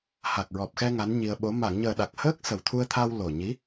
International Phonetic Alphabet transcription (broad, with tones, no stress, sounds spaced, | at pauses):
h a˨˩ k̚ ɹ ɔ˨˩ p̚ x ɛ˧ ŋ a˧˥ n ɲ i˧ ə̯ ɓ o˧˥ m a˨˩˨ ŋ ɲ əː˨˩ ɗ a˨˩ k̚ h əː˦˥ k̚ s ə˨˩ w t̪ʰ u˧ ə̯ t̪ʰ a˧ w l o˨˩ ɲ i˧˥